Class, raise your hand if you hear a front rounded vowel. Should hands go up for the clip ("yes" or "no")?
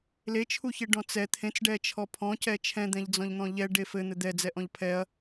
no